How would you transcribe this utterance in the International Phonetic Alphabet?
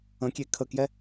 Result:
ə̃ kʲ e kʰ ə k j ɛ

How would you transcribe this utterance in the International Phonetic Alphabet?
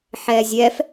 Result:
ħ ɛ zʲ ɛ f

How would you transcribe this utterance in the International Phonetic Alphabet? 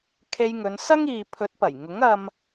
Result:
kʰ e˧ j ŋ ɵ˨˧ n s ɐ˥ ŋ iː˨ pʰ ɵ˨˥ t̚ p ɐ˨˩ j ŋ ʊ˨˥ ŋ ɐ˧ m

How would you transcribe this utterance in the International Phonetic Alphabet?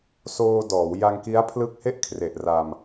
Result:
s oː˧ d ɔː˩˦ w j a˧ ŋ k i˦˥ a̯ pʰ l ɯ˦˥ k̚ h e˦˥ ʔ kʰ r e˨˩ ʔ r a˧ m

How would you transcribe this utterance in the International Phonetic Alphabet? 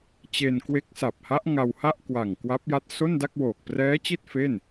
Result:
t͡ɕ e˧ n k w e˦˥ k̚ s a˨˩ p̚ h a˦˥ ʔ ŋ a˧ w h a˥˩ ʔ k w a˨˩ ŋ k w a˦˥ p̚ j a˦˥ t̚ s o˥˩ n d a˥˩ k̚ w oː˨˩ k̚ p r ɛː˦˥ t͡ɕ i˥˩ t̚ f e˥˩ n

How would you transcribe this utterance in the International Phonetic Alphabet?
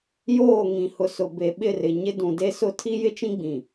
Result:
j oː˦˨ ŋ ĩ˨ h ʊ˨ s ʊ˨ b e˨ ɓ ɪ˦˨ r ɪ˨ ɲ ɪ˦ d ũ˨ d e˦ s ʊ˦ tʰ i˦ j ɪ˦ t͡ʃ ĩ˦ ɡ͡b ĩ˨

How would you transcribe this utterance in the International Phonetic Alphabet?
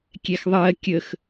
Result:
kʲ ɛ x ðˤ ɜ kʲ ə x

